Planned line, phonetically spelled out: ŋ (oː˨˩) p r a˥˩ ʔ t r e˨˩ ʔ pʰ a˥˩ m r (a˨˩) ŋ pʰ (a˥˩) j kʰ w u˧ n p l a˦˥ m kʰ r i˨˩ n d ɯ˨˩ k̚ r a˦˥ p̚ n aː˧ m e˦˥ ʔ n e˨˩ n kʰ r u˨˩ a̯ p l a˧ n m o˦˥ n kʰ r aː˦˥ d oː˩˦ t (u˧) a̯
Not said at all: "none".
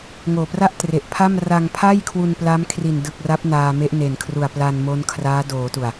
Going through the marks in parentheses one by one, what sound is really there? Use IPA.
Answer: oː˨˩, a˧, a˥˩, u˨˩

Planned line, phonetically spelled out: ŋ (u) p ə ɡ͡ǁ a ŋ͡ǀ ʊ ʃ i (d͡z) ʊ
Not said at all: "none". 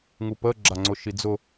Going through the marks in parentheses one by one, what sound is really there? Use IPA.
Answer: u, d͡z

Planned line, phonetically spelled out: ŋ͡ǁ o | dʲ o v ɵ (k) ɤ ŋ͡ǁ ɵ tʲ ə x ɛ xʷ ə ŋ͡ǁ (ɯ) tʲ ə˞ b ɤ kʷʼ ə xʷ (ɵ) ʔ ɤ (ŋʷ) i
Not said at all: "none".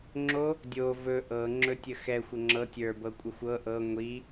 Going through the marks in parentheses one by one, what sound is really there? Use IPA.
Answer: ʔ, ɤ, ɤ, ŋʷ

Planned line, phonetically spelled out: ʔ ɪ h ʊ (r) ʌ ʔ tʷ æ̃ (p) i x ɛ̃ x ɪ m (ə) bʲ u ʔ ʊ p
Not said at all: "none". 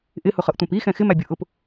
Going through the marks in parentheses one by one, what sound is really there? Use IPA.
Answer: χ, p, æ

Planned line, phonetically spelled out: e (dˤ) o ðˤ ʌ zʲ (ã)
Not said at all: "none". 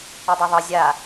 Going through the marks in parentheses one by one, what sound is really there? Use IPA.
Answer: dˤ, a

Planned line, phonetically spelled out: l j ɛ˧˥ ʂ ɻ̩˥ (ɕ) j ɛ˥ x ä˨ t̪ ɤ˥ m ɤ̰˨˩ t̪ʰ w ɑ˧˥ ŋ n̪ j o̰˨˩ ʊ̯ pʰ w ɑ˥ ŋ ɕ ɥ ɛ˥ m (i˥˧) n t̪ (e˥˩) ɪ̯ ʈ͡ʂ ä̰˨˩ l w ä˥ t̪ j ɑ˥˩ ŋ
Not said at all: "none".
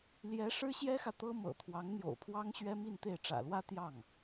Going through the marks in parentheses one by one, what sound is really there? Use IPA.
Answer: ɕ, i˥˧, e˥˩

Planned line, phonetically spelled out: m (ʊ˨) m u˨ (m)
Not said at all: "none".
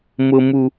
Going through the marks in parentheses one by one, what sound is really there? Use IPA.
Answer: ʊ˨, none

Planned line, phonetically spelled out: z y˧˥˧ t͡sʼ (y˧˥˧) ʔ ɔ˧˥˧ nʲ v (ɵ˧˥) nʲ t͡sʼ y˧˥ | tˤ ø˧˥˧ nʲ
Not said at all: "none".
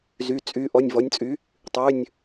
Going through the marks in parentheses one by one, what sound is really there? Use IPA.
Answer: y˧˥˧, ɔ˧˥

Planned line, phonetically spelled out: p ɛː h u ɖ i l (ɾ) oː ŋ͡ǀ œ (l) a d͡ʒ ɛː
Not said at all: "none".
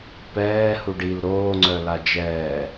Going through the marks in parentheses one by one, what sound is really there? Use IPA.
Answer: ɾ, l

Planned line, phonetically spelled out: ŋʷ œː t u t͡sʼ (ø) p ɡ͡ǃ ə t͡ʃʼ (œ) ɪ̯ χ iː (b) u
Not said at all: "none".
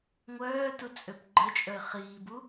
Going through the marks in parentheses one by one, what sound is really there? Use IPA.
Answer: ø, œ, b

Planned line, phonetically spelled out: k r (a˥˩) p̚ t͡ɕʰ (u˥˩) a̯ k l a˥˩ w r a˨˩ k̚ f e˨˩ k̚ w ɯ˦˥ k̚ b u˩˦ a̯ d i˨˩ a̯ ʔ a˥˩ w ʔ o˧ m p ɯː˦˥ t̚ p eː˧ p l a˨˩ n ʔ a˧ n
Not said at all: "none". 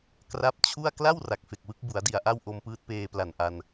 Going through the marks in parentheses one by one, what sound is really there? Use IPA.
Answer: a˦˥, u˥˩

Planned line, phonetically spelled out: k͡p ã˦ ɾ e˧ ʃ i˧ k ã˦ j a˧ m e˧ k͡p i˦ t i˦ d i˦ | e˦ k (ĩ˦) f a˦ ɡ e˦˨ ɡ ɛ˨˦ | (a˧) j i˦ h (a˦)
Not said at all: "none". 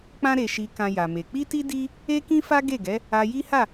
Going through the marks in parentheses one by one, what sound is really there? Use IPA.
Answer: ĩ˦, a˧, a˦˨

